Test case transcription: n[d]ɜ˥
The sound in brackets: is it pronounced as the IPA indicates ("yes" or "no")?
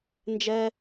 no